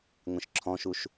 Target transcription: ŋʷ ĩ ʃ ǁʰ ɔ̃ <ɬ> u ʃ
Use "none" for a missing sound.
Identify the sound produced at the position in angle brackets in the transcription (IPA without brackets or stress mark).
ʃ